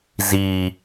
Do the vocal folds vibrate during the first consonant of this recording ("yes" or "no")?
yes